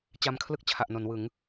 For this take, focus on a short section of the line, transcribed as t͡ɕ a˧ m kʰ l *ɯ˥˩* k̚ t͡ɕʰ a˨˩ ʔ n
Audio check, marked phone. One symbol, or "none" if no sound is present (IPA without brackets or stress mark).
ɯ˥˩